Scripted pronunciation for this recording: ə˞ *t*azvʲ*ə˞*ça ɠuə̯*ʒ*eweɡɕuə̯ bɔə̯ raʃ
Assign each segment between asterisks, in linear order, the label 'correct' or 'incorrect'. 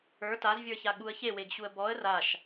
correct, correct, incorrect

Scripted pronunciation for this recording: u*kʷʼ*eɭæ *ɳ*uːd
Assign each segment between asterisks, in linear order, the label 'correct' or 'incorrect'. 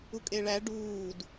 incorrect, incorrect

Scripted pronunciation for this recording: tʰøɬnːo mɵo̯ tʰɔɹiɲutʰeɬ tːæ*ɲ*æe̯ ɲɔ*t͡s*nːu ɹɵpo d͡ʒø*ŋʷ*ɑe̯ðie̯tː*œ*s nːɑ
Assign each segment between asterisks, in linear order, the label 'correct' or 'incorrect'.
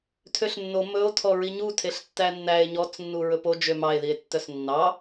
incorrect, correct, incorrect, correct

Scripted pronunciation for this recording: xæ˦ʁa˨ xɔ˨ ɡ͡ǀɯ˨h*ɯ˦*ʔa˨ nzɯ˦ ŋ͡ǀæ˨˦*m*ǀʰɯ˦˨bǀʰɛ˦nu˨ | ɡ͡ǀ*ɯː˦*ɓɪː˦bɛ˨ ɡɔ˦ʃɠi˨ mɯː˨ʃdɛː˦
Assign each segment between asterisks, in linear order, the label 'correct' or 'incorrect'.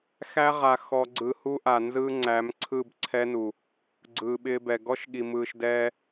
incorrect, correct, incorrect

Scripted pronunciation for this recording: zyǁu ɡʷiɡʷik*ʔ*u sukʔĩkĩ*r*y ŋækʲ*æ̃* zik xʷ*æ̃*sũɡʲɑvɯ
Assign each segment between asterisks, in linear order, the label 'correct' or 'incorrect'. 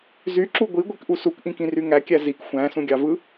correct, correct, incorrect, correct

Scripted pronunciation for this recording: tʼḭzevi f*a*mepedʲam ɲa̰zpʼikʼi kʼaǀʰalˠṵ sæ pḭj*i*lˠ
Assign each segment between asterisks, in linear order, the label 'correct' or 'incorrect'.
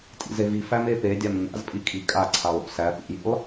incorrect, incorrect

